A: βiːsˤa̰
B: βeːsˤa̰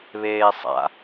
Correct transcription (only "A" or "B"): B